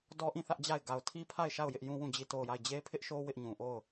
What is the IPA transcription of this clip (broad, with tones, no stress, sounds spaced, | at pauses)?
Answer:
d ɔ˦ ʔ ĩ˦˨ θ ä˦ ʔ d͡ʑ a˦˨ ɪ̯ ɡ a˨ ʊ̯ tʰ i˦ pʰ a˦˨ ɪ̯ ʃ a˦˨ ʊ̯ j ɪ˦ ʔ j ũ˦ w ũ˦˨ d͡ʑ i˦˨ t o˦˨ ʊ̯ j a˦˨ ɪ̯ d͡ʑ e˦ pʰ ɪ˦ ʔ ʃ o˦ w ɪ˦ ʔ ɲ ũ˨ ʔ o˦˨ ʊ̯